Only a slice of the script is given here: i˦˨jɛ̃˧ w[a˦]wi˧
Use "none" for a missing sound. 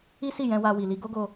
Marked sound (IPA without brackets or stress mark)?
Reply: a˦